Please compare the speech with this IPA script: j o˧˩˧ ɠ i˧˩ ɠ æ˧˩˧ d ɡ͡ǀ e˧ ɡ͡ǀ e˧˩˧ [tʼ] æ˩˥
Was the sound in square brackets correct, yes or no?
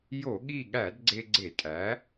yes